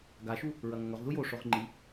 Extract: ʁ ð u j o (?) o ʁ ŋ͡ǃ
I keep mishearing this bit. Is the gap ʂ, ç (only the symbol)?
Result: ʂ